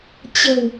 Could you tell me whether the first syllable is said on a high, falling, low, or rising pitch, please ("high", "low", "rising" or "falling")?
low